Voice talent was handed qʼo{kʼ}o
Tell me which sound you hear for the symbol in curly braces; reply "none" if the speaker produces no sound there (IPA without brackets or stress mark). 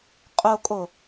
kʼ